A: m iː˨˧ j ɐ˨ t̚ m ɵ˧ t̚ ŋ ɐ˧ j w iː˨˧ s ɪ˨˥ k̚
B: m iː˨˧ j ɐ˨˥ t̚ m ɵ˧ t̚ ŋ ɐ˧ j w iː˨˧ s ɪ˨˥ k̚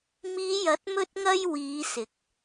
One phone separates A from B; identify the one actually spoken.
B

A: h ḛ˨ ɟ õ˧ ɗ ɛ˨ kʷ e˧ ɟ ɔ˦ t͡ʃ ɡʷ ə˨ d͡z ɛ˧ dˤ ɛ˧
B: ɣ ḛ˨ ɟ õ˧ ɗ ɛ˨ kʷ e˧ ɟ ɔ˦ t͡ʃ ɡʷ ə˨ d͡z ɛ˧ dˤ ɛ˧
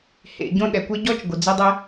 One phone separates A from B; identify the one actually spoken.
A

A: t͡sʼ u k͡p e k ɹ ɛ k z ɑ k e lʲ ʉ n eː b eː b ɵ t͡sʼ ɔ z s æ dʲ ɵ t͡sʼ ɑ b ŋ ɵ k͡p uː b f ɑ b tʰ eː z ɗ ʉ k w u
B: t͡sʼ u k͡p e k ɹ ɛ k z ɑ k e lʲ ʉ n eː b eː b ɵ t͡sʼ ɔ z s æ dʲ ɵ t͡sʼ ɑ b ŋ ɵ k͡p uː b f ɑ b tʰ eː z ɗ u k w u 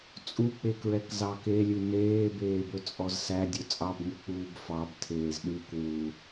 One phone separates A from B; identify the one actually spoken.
A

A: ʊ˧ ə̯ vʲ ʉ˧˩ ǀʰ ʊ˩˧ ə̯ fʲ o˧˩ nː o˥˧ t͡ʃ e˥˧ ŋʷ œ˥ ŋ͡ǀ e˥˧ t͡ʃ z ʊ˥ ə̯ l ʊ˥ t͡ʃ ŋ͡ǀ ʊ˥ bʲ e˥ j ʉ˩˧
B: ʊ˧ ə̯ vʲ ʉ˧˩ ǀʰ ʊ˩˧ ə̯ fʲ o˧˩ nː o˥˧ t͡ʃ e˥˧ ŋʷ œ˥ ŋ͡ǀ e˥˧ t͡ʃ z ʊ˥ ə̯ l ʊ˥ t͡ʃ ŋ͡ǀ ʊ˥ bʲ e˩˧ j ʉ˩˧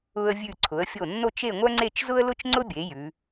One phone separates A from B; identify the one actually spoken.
B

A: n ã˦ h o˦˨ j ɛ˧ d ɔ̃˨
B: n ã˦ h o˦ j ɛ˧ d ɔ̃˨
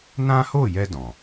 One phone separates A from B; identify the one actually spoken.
A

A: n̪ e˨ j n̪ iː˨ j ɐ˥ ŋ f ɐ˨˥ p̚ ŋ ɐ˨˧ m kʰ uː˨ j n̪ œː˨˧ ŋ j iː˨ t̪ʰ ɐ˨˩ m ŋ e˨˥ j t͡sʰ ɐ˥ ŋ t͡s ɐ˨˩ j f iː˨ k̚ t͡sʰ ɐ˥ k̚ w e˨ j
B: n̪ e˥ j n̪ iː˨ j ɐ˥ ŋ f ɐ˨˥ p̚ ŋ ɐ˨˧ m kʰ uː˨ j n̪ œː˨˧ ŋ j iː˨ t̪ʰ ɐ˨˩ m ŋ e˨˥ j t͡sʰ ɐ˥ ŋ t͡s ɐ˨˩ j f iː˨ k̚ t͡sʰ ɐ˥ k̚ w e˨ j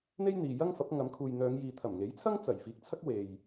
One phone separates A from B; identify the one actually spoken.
B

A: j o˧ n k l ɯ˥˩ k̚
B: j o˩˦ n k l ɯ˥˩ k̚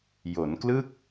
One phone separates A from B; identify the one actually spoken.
B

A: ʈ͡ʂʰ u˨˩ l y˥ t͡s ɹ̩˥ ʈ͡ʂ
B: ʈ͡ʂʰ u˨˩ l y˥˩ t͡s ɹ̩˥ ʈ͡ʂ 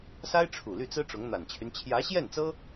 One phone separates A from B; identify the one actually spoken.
B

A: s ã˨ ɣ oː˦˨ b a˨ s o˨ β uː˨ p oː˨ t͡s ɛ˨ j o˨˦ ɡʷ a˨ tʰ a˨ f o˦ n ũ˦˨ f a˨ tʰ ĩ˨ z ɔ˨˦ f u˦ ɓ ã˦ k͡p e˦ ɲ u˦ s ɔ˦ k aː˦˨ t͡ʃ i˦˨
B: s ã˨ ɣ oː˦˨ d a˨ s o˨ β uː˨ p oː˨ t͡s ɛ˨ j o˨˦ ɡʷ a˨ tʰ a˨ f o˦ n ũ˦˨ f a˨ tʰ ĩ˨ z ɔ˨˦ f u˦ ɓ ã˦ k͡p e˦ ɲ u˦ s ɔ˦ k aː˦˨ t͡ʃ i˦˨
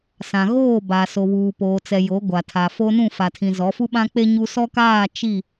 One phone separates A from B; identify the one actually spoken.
A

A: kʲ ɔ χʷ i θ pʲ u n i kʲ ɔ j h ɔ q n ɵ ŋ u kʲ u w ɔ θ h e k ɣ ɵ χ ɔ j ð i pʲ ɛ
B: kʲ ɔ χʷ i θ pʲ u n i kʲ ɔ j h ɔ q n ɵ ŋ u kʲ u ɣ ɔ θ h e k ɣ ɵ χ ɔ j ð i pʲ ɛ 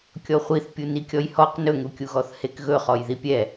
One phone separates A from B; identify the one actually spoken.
B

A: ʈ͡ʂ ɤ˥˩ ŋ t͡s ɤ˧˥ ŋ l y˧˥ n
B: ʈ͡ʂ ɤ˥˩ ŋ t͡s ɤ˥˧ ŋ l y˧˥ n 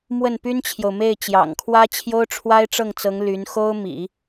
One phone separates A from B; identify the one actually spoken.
A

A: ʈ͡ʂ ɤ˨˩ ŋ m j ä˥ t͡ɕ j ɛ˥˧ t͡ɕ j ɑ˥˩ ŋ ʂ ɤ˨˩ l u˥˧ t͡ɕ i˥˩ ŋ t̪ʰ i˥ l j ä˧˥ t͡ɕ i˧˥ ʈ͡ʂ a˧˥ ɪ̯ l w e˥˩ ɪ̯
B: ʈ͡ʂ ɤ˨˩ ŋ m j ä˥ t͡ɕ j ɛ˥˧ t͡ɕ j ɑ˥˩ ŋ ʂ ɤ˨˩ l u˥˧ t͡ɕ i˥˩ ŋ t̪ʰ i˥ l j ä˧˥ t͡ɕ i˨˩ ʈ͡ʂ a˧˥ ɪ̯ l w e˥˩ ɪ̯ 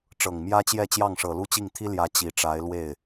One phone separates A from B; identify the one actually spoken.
B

